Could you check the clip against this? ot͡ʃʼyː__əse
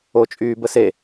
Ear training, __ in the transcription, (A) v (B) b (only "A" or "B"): B